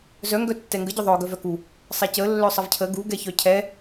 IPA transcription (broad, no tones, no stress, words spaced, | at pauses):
zœ ŋɡœtːɛŋɡə ɟœðˤœ ɡœvœku | sˤɛcə lːœsˤəvcʰə ɡu ɡɛçœcʰɛ